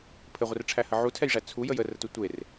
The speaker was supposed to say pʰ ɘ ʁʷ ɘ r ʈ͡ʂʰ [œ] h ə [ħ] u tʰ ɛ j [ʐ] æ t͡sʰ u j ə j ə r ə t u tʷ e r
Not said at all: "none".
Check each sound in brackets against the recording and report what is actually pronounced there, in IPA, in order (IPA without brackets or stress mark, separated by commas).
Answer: æ, ʕ, ʐ